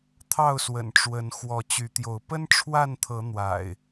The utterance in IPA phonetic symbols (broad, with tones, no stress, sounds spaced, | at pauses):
t̪ʰ ɑ˥˨ ʊ̯ s w ə̰˨˩ n ʈ͡ʂ w ə˨˦ n x w ɔ˨˦ t͡ɕ y˨˦ t̪ j o˨˦ ʊ̯ p ə˦ n ʈ͡ʂʰ w a˥˨ n t̪ʰ ɤ˨˦ n̪ w a̰˨˩ ɪ̯